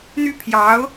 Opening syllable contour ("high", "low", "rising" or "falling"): falling